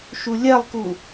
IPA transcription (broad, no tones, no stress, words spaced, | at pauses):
ʃulʲɜlˠku